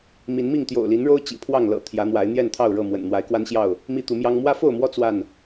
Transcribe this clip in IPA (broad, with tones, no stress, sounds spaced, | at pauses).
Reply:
m i˨˦ n m i˥˨ ŋ t̪ j o̰˨˩ ʊ̯ l i˨˦ n ɻ o˦ ʊ̯ t͡ɕ ḭ˨˩ pʰ w ɑ˥˨ ŋ l ɤ̰˨˩ t̪ʰ j ä˨˦ n̪ w a˨˦ ɪ̯ n̪ j ɛ˥˨ n t̪ʰ ɑ˥˨ ʊ̯ ɻ ɤ˥˨ m w ə̰˨˩ n n̪ w a˨˦ ɪ̯ k w a˦ n ɕ j ɑ˥˨ ʊ̯ | m i˦ t̪ u˨˦ m j ɑ˦ ŋ m w ä˦ f o˥˨ ʊ̯ m w ɔ˦ t͡s w a˥˨ n